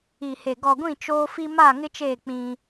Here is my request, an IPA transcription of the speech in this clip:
i˨ h e˨ ɡ ɔ˨ ɡʷ ĩ˦˨ t͡ʃ oː˦ f i˦ m a˦˨ ŋ ɪ˦ t͡ʃ eː˦˨ k͡p ĩ˦

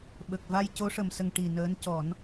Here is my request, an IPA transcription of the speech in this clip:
ɓ ə˨˩ k̚ v a˧ j c o˧˥ ʂ ə˨˩ m s ə˨˩ ŋ ʈ i˨˩ n əː˧˥ n c ɔ˨˩˦ n

